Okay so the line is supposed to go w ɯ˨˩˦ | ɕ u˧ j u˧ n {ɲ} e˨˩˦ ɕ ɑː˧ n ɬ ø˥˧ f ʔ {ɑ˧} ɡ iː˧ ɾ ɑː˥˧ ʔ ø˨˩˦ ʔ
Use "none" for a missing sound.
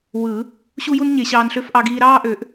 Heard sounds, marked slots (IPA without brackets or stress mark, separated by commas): ɲ, ɑ˧